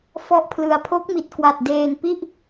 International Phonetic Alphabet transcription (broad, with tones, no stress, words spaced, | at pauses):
fɔ˥˩ʔpʰlɯ˧a̯ pʰo˦˥k̚mi˨˩t̚kwa˨˩t̚ deː˧npi˥˩ʔ